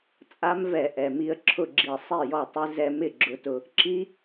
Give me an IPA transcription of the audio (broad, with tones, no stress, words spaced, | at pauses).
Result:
t͡sʼa˦˥mvɛ˧˩˧ ʔɛ˩ mi˧ə̯ǁʰʊ˥˩ɡ͡ǁi˧˩˧ sˤi˥˩jɔ˥˩tˤɪ˦˥ zɛ˧mɪ˥˩ ɡ͡ǁʊ˧tʊ˧ | ǁi˦˥